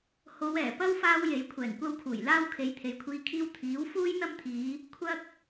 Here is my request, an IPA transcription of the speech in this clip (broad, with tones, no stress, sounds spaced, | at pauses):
h o˨˧ w ɛː˨˩ p ɐ˥ w f aː˥ w j e˨˥ j kʷʰ ɛː˨˩ ŋ kʷ ɐ˥ w kʰ uː˨˩ j l aː˥ w kʰ e˨˧ j t̪ʰ e˨ j kʷʰ iː˧ kʰ iː˥ w t̪ʰ iː˨˥ w f uː˥ j n̪ ɐ˥ m t̪ʰ iː˨˧ | kʷʰ ɐ˥ k̚